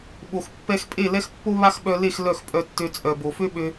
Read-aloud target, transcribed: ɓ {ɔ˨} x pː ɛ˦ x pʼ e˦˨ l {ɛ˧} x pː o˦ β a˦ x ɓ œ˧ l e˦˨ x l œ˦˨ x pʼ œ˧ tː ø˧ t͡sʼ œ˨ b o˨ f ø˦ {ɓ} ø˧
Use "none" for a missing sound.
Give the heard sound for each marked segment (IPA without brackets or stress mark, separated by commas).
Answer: o˨, ɛ˦, ɓ